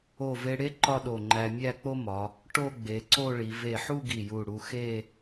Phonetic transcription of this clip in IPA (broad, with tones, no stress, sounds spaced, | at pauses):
o˧˩ v e˧ ɽ e˥ ǃ ɒ˥˧ ɗ o˧˩ ŋ͡ǃ æ˧ mʲ æ˥˧ k͡p o˥ m ɒ˩˧ | ʈ o˥˧ ɡ͡b e˩˧ ǀ o˥˧ ɭ i˩˧ v e˧˩ ħ u˥˧ ɡ i˧˩ j u˧˩ ɽ u˧ x e˥˧